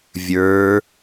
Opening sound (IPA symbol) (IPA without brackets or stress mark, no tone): vʲ